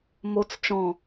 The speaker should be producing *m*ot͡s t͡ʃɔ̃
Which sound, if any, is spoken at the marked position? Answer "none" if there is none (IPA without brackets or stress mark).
m